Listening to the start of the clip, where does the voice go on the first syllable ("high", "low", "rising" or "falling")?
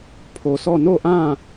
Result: low